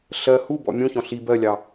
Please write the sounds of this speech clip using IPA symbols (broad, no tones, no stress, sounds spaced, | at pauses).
ɬ ɜ h u b ɔ̰ mʲ ũ ç ɔ̃ ɬ i b ɜ lʲ ɑ